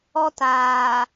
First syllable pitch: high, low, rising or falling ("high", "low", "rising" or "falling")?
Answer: high